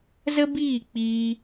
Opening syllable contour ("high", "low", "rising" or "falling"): high